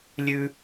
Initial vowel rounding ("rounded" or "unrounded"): rounded